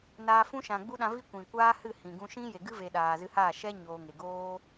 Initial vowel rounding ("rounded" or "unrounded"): unrounded